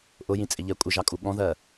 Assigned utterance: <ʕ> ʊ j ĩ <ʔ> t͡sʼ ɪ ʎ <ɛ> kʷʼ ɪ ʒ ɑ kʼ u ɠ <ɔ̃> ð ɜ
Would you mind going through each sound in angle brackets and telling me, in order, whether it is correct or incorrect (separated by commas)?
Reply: incorrect, incorrect, correct, correct